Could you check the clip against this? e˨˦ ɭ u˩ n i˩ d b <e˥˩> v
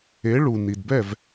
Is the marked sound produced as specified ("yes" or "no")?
no